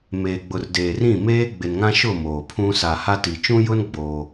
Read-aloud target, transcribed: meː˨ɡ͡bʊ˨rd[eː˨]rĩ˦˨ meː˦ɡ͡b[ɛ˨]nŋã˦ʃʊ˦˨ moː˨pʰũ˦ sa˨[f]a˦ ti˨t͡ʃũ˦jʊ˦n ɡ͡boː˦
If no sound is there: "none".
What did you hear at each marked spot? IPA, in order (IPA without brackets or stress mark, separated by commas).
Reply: eː˨, ɪ˨, h